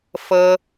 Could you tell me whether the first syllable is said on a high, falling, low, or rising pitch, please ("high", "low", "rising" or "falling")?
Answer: high